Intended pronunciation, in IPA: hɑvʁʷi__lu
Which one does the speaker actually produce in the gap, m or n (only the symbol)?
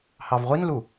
n